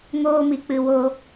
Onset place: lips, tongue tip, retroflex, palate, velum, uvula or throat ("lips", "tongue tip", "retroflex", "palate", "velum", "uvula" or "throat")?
velum